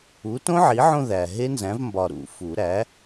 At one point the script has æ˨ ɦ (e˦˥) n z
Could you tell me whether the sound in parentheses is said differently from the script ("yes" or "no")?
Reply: no